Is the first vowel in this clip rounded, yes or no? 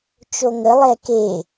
yes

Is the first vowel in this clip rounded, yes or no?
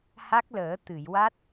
no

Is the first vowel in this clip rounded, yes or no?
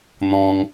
yes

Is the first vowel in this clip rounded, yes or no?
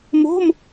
yes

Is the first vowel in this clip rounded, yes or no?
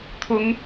yes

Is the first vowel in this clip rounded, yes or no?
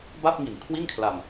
no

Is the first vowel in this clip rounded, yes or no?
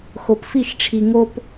yes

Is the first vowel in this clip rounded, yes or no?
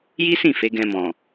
no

